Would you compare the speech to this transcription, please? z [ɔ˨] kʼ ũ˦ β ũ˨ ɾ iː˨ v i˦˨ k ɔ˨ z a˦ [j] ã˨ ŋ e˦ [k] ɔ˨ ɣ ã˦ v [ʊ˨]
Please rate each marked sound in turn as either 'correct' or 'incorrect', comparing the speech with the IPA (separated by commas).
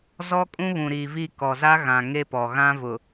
incorrect, incorrect, incorrect, correct